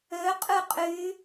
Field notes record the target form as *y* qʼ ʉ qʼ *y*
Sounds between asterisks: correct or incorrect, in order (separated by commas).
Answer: incorrect, correct